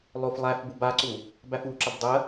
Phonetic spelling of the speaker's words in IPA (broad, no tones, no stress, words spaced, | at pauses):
lˠoflˠæf bubaǀu | bæfuǁəb dˤə